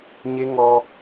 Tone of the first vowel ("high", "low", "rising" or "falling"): high